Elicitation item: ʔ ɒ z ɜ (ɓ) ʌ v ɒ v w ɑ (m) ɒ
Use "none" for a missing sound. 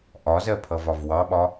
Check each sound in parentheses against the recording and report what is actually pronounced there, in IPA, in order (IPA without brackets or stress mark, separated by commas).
pʰ, ɓ